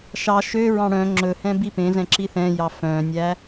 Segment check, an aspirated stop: absent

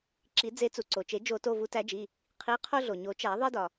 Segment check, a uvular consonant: present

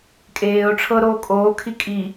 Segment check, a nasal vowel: absent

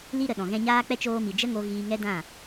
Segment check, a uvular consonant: absent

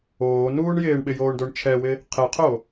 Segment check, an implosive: present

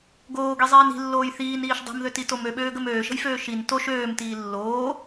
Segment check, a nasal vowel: absent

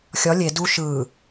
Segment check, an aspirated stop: absent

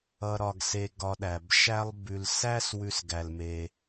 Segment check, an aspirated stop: absent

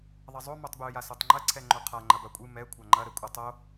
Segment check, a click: present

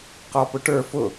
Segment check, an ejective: absent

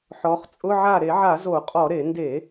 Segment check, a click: absent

